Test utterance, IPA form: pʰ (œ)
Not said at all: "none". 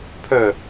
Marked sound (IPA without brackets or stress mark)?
œ